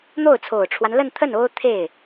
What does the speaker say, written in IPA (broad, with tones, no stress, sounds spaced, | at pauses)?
n̪ o˥˩ ʊ̯ t͡sʰ o˨˩ ʊ̯ ʈ͡ʂʰ w a˦ n l ə˥˧ n t̪ʰ ə˥˩ n o˥ ʊ̯ t̪ʰ e˥˩ ɪ̯